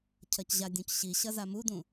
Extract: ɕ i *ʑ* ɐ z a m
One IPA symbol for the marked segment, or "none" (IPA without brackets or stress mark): ɕ